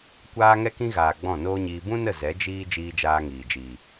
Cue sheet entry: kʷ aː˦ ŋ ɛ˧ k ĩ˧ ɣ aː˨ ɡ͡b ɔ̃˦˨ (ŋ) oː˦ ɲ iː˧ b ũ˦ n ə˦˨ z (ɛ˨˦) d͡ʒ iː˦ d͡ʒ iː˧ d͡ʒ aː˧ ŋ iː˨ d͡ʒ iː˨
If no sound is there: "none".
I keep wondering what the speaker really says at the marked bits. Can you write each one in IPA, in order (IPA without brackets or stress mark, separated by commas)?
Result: n, ɛ˨˦